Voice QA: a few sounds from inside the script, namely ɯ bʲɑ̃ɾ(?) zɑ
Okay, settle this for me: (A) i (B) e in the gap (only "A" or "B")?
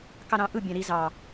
A